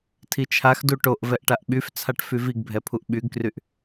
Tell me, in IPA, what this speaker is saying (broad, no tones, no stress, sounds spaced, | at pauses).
tʰ i t͡ʃʰ a x d u ʈ o ʔ v ɛ ʔ ʈ a ʔ ɓ y f t͡sʰ a ʈ f y v i ɡ bʱ ɛ pʰ u ʔ ɓ y ɡ k r y ʔ